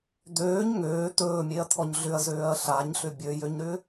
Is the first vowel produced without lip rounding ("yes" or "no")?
no